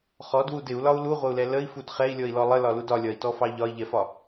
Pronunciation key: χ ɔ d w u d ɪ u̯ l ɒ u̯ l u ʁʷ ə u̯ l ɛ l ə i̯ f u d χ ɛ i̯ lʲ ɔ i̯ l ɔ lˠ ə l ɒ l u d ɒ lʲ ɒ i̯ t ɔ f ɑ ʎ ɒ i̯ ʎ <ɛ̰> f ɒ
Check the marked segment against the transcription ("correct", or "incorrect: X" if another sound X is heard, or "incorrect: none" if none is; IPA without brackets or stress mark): incorrect: ɛ